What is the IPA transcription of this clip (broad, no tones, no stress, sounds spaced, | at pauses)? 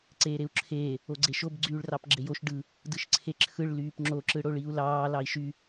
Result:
ǀ eː ɾ e u̯ ǁʰ eː | o ɡ͡ǀ e ʃ o b ɡ͡ǀ yː ɭ r ɑ p ɡ͡ǁ e j o ʃ ɖ ɯ | d ɯ ʃ ǀʰ e ǁʰ ɯ ɭ l yː p ŋ͡ǁ o ǁ ɯ ɽ o ɭ i u̯ l ɑː l ɑ i̯ ʃ y